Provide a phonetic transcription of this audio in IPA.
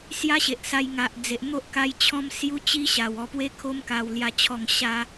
s j a˦ ɕ e˨ ʔ s a˧ j ŋ a˨ ʔ d͡z e˨ ʔ n̪ o˦ ʔ k a˧ j t͡ɕʰ ɔ̃˦ m s j u˦ t͡ɕ i˦ ɕ a˨˩ w ɔ˨˩ p w e˧ kʰ o˧ m k a˨˩ w l j a˨˩ t͡ɕʰ ɔ˨˩ ŋ ɕ a˧

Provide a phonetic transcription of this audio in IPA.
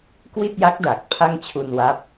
k w i˥˩ t̚ j a˦˥ k̚ d a˨˩ k̚ pʰ a˥˩ ŋ t͡ɕʰ u˧ n w a˦˥ p̚

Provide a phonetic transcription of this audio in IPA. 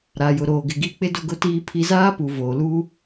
ɾ a˨ j ʊ˨ ɾ oː˨ ɡ ɪ˨ ɡ i˦˨ k͡p ɪ˦ d ʊ˦ ɡ ʊ˦ t iː˦ pʰ i˦ z aː˦ p u˨ v oː˨ l u˦

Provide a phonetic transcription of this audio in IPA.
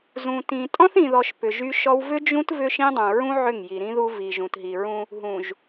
z ũ˨ t ĩ˨ tʼ ɔ̃˦ θ ĩ˨ ð ɔ˨ ʃ p ʏ˨ ʒ y˦ ʃ ɔ˦ w v ʏ˦ d͡ʒ ũ˦ t v ʏ˦ ʃ ĩ˦ dˤ ũ˨ ɹ ũ˦ ʕ ʏ˦˨ ŋ j i˨ ɾ ĩ˦ ð u˦ v i˨ ʒ ũ˨ t ɦ i˨ ɹ ũ˦ | ɦ ũ˨ ʒ

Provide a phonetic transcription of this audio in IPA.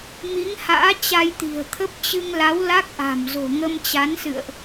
m i˨˦ ŋ h a̰ː˧˥ t͡ɕ a˧ j t̪ i̤˨˩ ə̯ t̪ʰ ə˦˥ p̚ t͡ɕ ɨ˧ ŋ l a˨˦ w l a˦˥ k̚ ʔ a̤˨˩ m z o̤˨˩ ŋ ə˧ m t͡ɕ a˨˦ n s ɨ̰˧˨ ə̯ ʔ

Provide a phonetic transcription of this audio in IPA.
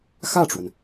x ä˥˩ ʈ͡ʂ w ə˩ n

